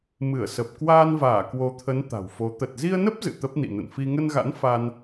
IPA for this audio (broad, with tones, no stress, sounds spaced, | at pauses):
m ɨ˧˩ ə̯ s ə˨˩ p̚ k w aː˧ n v aː˧˩ k w o˨˦ t̪ʰ ə˨˦ n t̪ a̤˨˩ w f o˨˦ t̪ ə˨˩ t̚ z i˧ ə̯ n ə˦˥ p̚ z ɨ̰˧˨ t̪ ə˦˥ p̚ n ḭ˧˨ n ə̰˧˨ n f i˧ ŋ ə˧ n ɣ a̰˧˥ n f a˧ n